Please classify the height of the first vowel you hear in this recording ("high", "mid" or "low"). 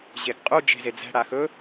mid